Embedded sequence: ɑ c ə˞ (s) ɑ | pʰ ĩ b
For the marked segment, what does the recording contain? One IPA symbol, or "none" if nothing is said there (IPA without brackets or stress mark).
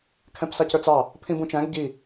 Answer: t͡s